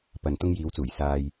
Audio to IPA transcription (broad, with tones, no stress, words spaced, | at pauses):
pɐ˨n t̪ʊ˧ŋjiː˨˧wt͡suː˨˩j saː˧j